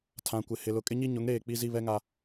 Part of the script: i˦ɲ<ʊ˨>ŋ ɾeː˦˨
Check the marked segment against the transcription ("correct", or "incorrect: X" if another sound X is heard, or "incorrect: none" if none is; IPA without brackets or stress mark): incorrect: ʊ˨˦